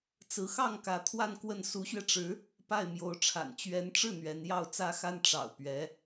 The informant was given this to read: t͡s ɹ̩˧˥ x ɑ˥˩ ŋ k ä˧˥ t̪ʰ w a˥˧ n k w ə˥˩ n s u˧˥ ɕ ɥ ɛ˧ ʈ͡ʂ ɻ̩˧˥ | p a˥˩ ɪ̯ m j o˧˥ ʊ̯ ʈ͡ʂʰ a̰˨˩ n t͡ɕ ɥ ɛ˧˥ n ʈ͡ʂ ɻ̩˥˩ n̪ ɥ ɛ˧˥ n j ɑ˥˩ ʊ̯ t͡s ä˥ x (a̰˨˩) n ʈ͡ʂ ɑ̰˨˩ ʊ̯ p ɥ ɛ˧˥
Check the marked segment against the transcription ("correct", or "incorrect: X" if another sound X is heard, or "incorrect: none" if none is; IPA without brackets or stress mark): incorrect: a˥